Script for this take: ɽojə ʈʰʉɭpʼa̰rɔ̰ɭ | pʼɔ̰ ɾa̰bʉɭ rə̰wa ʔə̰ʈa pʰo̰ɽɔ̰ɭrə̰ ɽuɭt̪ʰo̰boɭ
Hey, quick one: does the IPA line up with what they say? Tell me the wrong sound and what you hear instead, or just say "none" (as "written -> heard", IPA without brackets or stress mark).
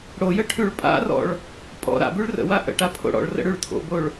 u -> ʉ